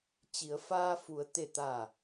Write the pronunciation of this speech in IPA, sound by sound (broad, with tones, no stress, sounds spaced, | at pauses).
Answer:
t͡ɕ i˩˧ ə̯ f aː˧ f u˩˧ ə̯ t̪ e˧˩ t̪ a˧˩